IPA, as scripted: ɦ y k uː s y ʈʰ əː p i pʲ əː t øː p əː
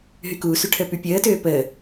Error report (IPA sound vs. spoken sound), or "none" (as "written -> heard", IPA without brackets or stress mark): i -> y